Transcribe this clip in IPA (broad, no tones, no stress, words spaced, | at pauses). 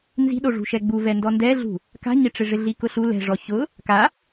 nzi̤ɗo ʐṳʃɛɡ͡bu vɛndɔndɛɮṳ | ka̤ɲɪʈ͡ʂɪ ʐɪɮikʊɬu lɛ̤ʐɔ çʊ | ka